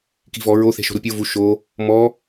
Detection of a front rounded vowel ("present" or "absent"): absent